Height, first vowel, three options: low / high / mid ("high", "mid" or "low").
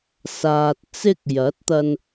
low